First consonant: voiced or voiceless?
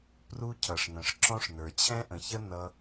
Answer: voiceless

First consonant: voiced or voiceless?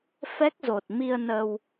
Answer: voiceless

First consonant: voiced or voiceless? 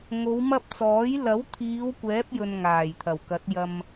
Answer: voiced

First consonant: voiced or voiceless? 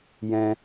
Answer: voiced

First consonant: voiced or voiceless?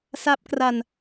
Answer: voiceless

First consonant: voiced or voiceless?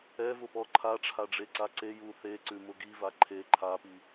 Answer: voiced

